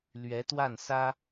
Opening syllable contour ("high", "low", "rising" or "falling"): rising